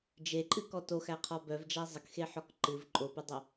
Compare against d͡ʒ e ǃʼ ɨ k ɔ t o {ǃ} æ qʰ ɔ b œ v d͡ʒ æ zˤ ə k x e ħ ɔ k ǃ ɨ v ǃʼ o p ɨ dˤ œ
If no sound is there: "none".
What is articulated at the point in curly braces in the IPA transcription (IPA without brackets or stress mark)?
x